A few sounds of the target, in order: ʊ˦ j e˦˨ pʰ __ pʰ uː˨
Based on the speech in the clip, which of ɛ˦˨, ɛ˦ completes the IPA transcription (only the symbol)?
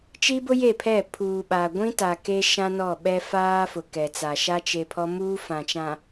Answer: ɛ˦˨